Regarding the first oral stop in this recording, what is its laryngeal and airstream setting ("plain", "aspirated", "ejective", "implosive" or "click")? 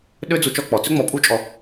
implosive